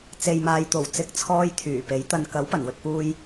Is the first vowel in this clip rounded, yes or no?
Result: no